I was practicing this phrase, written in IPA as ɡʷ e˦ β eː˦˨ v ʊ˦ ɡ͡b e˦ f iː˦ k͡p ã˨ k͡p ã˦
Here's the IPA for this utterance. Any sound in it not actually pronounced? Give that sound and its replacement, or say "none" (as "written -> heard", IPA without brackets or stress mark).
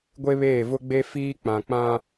none